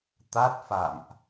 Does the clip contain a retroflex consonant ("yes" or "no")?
no